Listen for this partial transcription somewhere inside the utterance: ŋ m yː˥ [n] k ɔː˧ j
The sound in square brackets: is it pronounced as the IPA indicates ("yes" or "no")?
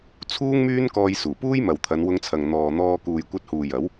yes